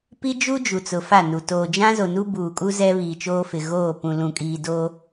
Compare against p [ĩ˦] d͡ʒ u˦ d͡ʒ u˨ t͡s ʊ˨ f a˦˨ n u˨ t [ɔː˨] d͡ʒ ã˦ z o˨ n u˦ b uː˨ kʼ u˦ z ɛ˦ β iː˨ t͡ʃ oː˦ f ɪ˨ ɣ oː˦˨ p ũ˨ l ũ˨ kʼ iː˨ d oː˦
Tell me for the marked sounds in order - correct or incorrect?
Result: incorrect: i˦, incorrect: oː˨

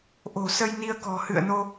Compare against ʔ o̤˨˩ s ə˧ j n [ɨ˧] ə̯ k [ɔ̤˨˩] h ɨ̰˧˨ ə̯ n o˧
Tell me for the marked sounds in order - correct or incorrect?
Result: incorrect: i˧, correct

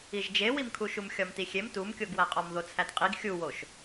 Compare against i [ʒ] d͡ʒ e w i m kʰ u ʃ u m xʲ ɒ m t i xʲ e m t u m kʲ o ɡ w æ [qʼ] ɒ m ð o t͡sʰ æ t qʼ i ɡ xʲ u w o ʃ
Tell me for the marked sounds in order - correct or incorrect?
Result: correct, correct

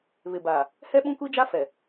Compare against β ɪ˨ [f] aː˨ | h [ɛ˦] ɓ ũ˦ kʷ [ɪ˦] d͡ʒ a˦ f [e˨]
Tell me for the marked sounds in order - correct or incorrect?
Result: incorrect: b, correct, incorrect: i˦, incorrect: ɛ˨

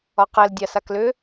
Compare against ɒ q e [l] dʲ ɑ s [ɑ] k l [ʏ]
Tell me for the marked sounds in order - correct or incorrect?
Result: correct, incorrect: a, correct

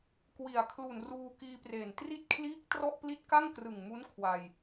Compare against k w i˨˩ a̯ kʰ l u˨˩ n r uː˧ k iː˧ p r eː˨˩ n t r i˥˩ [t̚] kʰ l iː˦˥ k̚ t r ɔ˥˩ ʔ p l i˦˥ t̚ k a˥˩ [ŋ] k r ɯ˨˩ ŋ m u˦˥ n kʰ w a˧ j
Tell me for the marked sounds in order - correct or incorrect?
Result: correct, correct

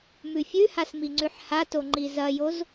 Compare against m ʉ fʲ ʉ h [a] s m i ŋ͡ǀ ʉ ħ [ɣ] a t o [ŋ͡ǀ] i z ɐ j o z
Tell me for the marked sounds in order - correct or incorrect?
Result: correct, incorrect: h, incorrect: ŋ͡ǃ

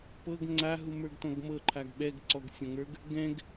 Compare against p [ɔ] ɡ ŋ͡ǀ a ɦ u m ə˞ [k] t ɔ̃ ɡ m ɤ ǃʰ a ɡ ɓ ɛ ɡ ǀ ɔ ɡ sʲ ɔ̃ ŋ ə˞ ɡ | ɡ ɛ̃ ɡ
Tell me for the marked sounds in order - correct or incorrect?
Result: incorrect: ɤ, incorrect: ɡ

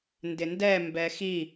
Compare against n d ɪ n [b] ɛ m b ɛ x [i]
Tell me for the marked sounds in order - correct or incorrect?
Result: incorrect: d, correct

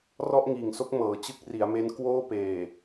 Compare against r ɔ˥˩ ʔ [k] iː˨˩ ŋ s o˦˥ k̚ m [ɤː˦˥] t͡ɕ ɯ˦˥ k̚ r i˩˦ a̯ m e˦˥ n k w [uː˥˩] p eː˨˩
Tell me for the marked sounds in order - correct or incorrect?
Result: incorrect: ŋ, incorrect: ɤː˩˦, incorrect: oː˥˩

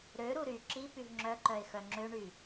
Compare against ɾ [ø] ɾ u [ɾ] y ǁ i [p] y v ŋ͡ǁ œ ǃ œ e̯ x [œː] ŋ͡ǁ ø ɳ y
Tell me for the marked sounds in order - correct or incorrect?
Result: correct, correct, correct, incorrect: œ

